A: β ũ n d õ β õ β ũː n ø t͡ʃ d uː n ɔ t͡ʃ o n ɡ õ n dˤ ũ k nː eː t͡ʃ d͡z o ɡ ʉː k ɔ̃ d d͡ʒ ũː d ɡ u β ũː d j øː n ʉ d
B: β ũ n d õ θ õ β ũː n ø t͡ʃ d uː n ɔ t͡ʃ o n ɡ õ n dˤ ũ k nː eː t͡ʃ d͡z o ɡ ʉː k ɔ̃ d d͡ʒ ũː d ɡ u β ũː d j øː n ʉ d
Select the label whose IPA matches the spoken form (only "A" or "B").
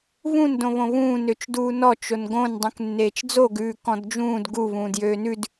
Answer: A